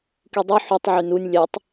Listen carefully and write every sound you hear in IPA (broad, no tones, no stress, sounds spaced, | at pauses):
k i dˤ i ħ y tˤ ʕ y n u nʲ lʲ ɛ tˤ